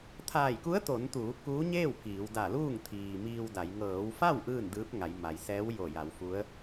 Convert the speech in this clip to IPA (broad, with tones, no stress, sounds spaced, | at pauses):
t̪ʰ aː˧˩ j k u˧˥ ə̯ t̪ o˩˧ n t̪ uː˩˧ k uː˧˥ ɲ eː˥˨ w k iː˩˧ w d a˧˩ l uː˥˨ ŋ t̪ʰ iː˩ m iː˧ w d a˩˧ j ŋ ɤː˩˧ w f a˥˨ w ʔ ɯː˥˨ n d ɯː˧˥ p̚ ŋ a˩˧ j m a˩ j s ɛː˧˥ w j o˧˩ j a˩˧ w f u˧˥ ə̯